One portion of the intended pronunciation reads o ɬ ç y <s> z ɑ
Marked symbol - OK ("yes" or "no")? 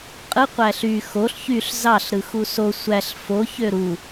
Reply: no